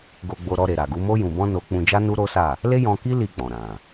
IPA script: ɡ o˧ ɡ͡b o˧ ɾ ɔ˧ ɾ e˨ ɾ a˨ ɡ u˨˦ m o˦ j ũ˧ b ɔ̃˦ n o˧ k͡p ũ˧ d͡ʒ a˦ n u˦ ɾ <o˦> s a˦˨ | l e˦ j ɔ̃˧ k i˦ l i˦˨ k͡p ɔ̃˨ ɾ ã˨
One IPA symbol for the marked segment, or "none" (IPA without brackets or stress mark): o˦